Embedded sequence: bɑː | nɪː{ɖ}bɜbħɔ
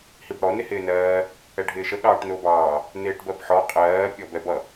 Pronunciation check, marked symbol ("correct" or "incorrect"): incorrect